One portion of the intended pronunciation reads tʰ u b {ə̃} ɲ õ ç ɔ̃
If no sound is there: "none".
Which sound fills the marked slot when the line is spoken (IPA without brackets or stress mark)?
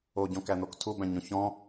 æ̃